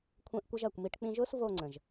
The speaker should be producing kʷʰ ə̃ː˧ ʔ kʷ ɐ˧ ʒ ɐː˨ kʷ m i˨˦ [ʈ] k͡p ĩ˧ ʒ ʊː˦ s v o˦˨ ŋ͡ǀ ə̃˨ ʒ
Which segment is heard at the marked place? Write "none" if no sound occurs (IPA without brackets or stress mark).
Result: ʈ